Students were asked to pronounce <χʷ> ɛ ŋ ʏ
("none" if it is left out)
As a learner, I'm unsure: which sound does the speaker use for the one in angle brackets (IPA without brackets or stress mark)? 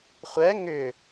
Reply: χʷ